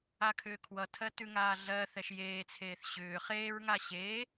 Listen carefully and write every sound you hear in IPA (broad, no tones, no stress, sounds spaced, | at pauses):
a kʰ ʏː kʰ w ʌ tʰ ɜ t ʉ ŋ aː ɮ ɜː θ ɛ ʃ j eː t͡sʰ eː θ ɕ ʏː χ eː ɹ ŋ a ɕ eː